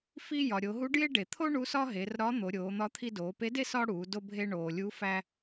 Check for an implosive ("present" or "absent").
absent